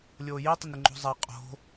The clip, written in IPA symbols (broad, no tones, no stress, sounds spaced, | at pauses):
lʲ oː j i tˤ ɪ n ɾ ɪ ŋ͡ǃ o̤ zˤ a qʼ o̤